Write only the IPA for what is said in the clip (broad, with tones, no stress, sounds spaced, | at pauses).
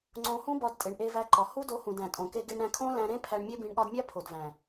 ŋ͡ǀ õ˧ h ũ˦ b ɒ˧ d tʼ e˨ ɳ ʔ e˧ v æ˧ ǃ ɒ˨ h u˦ d o˧ h ũ˨ d æ̃˨ tʼ õ˨ k e˧ ɡ e˧ ɳ ɾ æ̃˧ kʰ õ˦ l æ̃˧ ɾ ẽ˦ pʰ æ˧ ɳ mʲ e˦ b ĩ˧ ɳ ɠ ɒ˧ d mʲ æ˦ pʰ o˨ d v æ̃˨